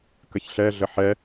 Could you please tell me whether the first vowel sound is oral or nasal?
oral